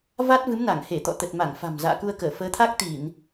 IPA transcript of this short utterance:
v a˦˥ t̚ v ɨ˨˦ m n a˧˩ ŋ h e˧˩ t̪ ɔ̰˧˨ t̪ ə˨˩ t̚ m a˧˩ ŋ f a̤˨˩ m z a̰ː˧˨ k u˧ ə̯ k əː˧˩ f əː˨˦ t̪ʰ a˦˥ k̚ t̪ i˧˩˨ n

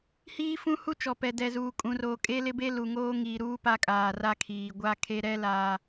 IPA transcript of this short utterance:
h iː˦ f ũ˦ h u˦ t͡ʃ ɔ˨ p ɛ˨ d ɛ˨ z uː˨ kʼ ũ˨ r oː˨ kʼ e˦ l ɪ˦ b e˦ l u˨ ŋ oː˦ ŋ iː˨ ɾ uː˦ p a˦ kʼ aː˨ r a˦ kʰ iː˨ ɡʷ a˦˨ kʰ e˦ ɾ ɛ˦ l aː˦

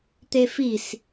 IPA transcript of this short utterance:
t̪ e f i s

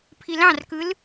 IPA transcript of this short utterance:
pʰ i l ɑ̃ r k ɯ l

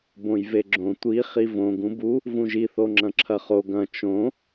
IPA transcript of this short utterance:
b õ j v e ɡ͡ǁ õ tʷ i χ i v õ ɡ ũ b u | v ũ ʒ i θ o ŋ͡ǁ ɐ̃ ǁʰ ɐ χ o ɡ ɐ̃ t͡ʃ õ

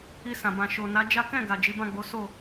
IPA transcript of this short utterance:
i˧ s ã˨ b ã˨ ʃ o˨ n a˨˦ d͡ʒ a˦ k ɛ̃˦˨ ɡ a˨ d͡ʒ i˨˦ b ã˦˨ ɡ͡b o˨˦ s o˦˨

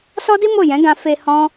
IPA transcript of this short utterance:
s ɔ˦ d i˦ m o˦˨ j ɛ̃˨˦ ɡ ã˧ f e˧ h ɔ̃˦

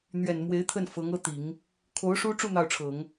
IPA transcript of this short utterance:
n̪ ɥ ɛ˨˩ n m w e˧˥ ɪ̯ t̪ʰ ə˥˩ n f ɤ˧˥ ŋ ɤ˥ t̪ i˨˩˦ ŋ | kʰ o˧˥ ʊ̯ ʂ u˥ ʈ͡ʂ u˥˧ n̪ ɑ˥˩ ʊ̯ ʈ͡ʂʰ ɤ˨˩˦ ŋ

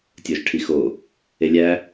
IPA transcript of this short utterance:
tʲ o ʒ ʈʰ i x o | e lʲ æ

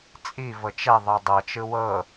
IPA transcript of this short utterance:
t͡sʼ i v ɤ t͡ʃ ɛ ðˤ ɤ dˤ ɤ t͡ʃ ɯ w ɤ

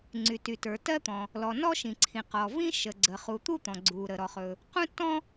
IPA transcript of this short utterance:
ŋ͡ǀ y˩ t y˩ t ə˞˩ t ɜ˥ t̪ ɔ̃˩ | l ɔ˩ n ɔ˥ ʃ ĩ˩ ǀʰ ĩ˩ q ɔ˩ v ĩ˥ ʃ ə˩ ɡ͡ǀ ə˩ χ u˩ t̪ u˥ t̪ ɔ̃˩ ɡ͡ǀ u˩ ɾ ə˩ ɾ ɔ˩ χ ɵ˩ | q ũ˥ tː ɔ̃˥

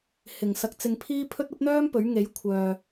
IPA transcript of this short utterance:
h ɪ˨˩ ŋ s ɐ˧ k̚ t͡s ɪ˧ ŋ pʰ iː˥ pʰ ɵ˥ t̚ ɐ˥ p̚ n̪ œː˥ m p ɵ˨˥ ɥ ŋ e˨˥ j kʷʰ œː˨

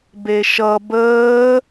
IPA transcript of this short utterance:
b e ʃ ʌ b əː

